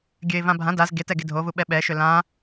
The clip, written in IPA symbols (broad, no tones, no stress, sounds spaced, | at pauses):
ɡʲ ø ɪ̯ v ã bʱ ã d a z ɡ e t ɛ ɡ e dʱ o v u ɓ ɛ ɓ ɛ ʃ ø l ã